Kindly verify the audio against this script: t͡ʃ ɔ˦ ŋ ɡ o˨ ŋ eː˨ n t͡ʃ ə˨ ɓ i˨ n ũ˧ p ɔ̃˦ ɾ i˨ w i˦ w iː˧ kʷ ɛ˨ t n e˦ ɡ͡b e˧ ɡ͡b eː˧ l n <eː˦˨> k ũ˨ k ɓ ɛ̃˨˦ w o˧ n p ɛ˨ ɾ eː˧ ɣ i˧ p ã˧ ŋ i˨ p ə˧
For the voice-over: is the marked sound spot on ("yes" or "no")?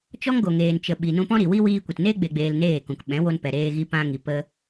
yes